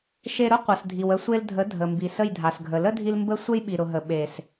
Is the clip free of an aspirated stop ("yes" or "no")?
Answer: yes